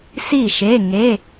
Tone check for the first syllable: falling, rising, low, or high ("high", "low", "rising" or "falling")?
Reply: falling